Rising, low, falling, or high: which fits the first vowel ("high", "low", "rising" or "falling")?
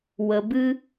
low